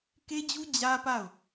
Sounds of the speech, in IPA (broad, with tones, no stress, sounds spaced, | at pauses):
k e˦ d͡ʑ u˦ d͡ʑ ä˦ p a˦˨ ʊ̯